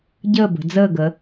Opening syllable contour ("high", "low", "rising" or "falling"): falling